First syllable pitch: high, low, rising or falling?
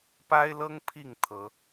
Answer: high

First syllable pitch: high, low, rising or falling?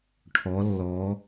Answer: rising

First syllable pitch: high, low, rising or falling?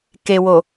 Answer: low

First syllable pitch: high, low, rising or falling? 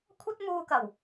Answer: high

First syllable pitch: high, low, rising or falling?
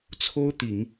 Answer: high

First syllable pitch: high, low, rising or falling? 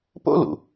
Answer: high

